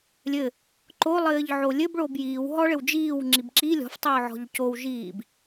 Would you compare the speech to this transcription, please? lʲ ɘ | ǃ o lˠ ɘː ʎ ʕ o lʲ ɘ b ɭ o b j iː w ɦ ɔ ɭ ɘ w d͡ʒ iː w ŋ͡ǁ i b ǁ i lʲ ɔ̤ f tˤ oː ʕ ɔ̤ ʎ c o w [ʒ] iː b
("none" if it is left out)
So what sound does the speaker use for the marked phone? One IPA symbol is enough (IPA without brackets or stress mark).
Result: ʒ